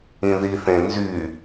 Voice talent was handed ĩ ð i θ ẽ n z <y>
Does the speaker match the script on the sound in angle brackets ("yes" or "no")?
yes